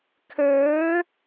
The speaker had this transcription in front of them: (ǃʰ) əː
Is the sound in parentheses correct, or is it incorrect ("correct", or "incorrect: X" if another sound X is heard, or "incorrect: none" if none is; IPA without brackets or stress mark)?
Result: incorrect: kʰ